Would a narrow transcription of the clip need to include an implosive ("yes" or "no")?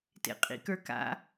no